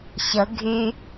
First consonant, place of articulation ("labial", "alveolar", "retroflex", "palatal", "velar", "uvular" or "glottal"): palatal